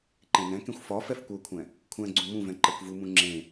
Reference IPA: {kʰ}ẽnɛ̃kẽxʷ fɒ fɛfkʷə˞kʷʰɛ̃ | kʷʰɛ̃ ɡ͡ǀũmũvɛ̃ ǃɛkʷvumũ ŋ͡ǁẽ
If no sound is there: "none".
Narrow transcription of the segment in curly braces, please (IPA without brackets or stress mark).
ǃ